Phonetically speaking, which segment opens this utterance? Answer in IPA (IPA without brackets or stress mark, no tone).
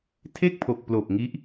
tʰ